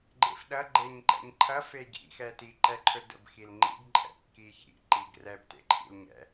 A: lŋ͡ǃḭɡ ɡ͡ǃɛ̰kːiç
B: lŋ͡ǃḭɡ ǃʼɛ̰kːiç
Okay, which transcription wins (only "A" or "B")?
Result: B